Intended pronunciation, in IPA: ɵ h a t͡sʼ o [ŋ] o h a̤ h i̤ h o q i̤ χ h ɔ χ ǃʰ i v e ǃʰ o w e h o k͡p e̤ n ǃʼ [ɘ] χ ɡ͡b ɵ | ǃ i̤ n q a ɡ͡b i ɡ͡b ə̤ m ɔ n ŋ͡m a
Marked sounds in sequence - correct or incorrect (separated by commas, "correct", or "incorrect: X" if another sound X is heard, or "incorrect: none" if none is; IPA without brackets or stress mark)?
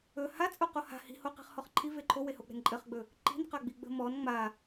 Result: incorrect: q, correct